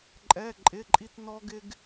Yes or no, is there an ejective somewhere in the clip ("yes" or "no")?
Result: yes